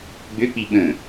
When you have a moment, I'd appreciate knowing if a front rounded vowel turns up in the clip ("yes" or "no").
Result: yes